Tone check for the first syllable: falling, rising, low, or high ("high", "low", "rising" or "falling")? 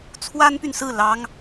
high